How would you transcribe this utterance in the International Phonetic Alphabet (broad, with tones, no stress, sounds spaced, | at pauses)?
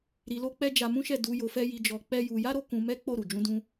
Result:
ɾ i˧ l o˦ k͡p ɛ˦ d͡ʒ a˧ m ũ˦ ʃ ɛ˦˨ d u˧ j o˧ f ɛ˦ j i˧ d͡ʒ ɔ˧ k͡p ɛ˦ j u˧ j a˦ ɾ o˧ k ũ˧ m ɛ˦ k͡p o˦˨ ɾ u˨ d͡ʒ ũ˧ d ũ˧